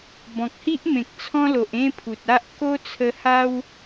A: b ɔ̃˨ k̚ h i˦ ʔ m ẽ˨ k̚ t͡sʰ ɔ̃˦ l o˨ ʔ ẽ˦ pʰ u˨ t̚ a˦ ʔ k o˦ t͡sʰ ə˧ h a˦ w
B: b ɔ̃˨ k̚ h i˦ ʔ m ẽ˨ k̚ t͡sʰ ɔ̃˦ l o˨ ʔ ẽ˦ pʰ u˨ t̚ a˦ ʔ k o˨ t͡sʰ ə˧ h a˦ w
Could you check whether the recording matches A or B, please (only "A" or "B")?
A